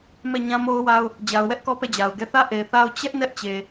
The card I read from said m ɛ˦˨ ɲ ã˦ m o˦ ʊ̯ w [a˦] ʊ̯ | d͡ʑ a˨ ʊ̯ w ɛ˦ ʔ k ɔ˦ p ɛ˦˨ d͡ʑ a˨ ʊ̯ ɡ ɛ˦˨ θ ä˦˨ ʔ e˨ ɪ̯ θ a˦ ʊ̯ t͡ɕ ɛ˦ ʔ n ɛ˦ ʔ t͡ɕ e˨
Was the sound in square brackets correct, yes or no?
yes